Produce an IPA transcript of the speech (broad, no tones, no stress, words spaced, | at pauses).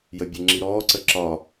jəbʲeŋ͡ǁiɾɔː ǀəǁɒ